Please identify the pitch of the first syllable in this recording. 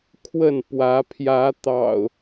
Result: falling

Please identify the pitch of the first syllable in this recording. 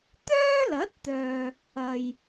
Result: high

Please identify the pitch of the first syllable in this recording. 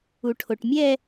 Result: low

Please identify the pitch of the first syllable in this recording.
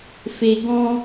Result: low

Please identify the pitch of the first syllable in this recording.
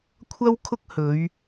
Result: high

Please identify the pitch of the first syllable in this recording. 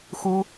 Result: high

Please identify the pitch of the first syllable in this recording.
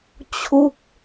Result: falling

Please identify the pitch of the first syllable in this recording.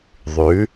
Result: rising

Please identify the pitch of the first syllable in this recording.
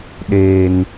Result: low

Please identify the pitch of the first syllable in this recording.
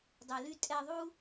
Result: low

